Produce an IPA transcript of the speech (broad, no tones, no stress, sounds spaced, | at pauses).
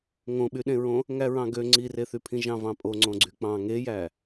ŋ õ ɓ y ɗ ẽ ɹ õ | ŋ æ ɹ ɑ̃ ɡ ø ŋ͡ǀ i r e θ y pʰ ĩ ʒ ɑ̃ v ɑ̃ pʼ o ŋ͡ǀ õ ɡ͡ǀ y k͡p ɑ̃ ŋ e j æ